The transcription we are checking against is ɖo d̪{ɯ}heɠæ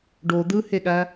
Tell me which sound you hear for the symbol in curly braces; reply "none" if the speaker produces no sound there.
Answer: ɯ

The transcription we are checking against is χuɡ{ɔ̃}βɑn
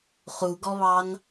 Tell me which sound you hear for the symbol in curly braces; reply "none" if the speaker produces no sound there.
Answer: ɔ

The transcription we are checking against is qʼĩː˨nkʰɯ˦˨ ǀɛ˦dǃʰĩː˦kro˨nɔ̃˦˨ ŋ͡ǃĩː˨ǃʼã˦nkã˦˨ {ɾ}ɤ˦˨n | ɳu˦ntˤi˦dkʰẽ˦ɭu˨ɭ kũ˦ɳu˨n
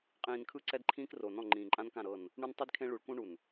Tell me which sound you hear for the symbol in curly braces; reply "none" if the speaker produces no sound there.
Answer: ɾ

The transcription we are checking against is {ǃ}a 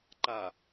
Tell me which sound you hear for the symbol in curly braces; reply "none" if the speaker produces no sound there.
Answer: ǃ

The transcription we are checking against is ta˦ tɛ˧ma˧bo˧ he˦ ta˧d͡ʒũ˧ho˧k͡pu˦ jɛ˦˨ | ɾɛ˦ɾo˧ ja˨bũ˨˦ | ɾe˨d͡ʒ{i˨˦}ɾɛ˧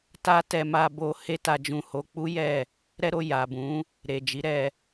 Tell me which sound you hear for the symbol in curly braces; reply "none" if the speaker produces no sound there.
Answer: i˨˦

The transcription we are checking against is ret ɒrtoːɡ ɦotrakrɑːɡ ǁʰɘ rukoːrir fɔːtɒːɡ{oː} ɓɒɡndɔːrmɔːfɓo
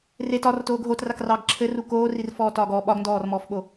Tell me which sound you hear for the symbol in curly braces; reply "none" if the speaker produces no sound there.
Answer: ɔː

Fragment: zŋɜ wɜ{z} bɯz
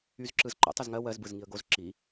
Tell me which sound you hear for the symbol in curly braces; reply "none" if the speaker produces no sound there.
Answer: z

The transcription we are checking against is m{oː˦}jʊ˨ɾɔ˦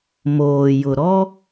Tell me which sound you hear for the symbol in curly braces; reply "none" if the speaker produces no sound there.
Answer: oː˨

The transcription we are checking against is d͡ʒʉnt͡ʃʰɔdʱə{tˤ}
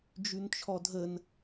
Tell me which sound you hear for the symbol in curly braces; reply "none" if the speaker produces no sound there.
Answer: n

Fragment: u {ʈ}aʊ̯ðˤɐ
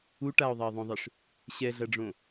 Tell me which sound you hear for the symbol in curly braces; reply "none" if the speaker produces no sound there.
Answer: ʈ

